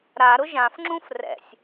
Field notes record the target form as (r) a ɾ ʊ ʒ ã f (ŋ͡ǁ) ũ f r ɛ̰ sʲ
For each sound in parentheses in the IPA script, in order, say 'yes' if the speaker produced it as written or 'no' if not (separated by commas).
no, yes